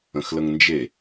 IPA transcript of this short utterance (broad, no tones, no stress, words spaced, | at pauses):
ə̃xləŋnd͡ʒe